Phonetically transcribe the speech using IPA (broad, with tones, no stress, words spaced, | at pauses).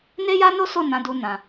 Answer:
ne˦ja˦no˦so˦˨ nã˨˦du˧nã˨